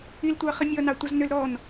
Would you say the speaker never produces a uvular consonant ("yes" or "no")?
no